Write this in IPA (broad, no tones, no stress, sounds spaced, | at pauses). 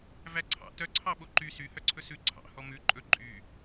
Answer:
v æ ǀʰ ɑ̰ t œ ǀʰ ɑ ɓ o ǃ y s y h œ ǀʰ ɵ s ʉ ǀʰ ɑ̰ h ɔ m ʉ ǃʼ ɵ ǃʼ y